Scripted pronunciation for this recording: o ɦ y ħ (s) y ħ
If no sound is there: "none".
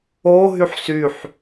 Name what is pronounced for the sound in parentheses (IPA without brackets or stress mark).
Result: s